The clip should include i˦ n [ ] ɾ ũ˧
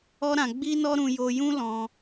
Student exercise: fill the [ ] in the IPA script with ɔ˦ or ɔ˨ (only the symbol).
ɔ˦